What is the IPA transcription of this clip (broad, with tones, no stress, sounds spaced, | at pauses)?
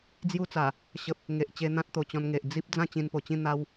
d͡z j u˦ t͡s a˨˩ | ɕ ə˦ p̚ | ŋ e˨ ʔ t͡ɕ e˧ n̪ ã˦ t̚ t̪ o˨˩ t͡ɕ ɔ̃˧ n ŋ e˨ ʔ d͡z i˦ p̚ d͡z ã˥˧ t͡ɕ ĩ˧ n p o˨˩ t͡ɕ ĩ˥˧ n̪ a˦ w